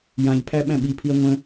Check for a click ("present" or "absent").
absent